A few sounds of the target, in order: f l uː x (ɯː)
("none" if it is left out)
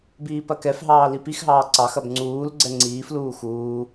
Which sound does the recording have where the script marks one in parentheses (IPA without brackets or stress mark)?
uː